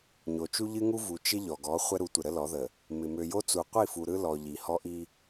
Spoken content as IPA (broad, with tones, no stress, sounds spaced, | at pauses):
ɲ o˨ t͡ʃ u˦ ʎ ɨ˦ ŋ u˦ v u˨ t͡ʃ ɪ˦ ʎ ɔ˨ ɡ ɔ˨˦ χʷ ɛ˦ ɾ u˨˦ tʷ ɪ˨ ɾ ə˦ l ɔ˨˦ ð ə˨ | m ɪ˨ m ø˨ j o˦ t͡s u˨ qʷ i˦˨ f u˨ ɾ ɯ˦ l ɔ˨ ʎ i˨ h ɔ˦ ʔ i˦